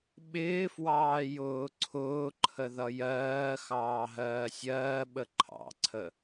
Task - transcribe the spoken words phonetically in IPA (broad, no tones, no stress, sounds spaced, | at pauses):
ɓ ɪː f w ɑː j ʊː ǀʰ ʊː ǃʰ ə ð ʌ j ɜː x ɑː ɦ ɜː sʲ ɜː ɓ ə ǃʰ ɑ̰ ǀʰ ə